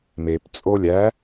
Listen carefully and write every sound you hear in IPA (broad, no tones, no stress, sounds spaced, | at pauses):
m e p t͡sʼ o lʲ æ